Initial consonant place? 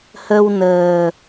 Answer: glottal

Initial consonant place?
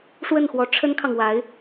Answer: retroflex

